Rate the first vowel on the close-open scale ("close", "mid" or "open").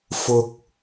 close